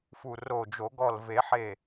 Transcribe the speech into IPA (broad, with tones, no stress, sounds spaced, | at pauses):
f u˧˩ r o˧˩ d͡ʒ o˨˩˦ ɡ ɔ˧˩ l v e˨˩˦ ħ e˧˩